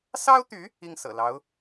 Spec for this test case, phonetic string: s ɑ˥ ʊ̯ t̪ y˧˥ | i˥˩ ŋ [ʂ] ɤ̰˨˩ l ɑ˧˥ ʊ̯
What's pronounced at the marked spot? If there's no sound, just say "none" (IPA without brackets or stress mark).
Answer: s